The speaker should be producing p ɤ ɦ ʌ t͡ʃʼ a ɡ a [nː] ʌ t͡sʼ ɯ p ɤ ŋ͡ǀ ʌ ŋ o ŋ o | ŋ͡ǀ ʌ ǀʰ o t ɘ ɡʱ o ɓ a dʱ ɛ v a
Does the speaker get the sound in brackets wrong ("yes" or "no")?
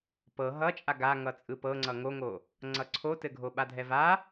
yes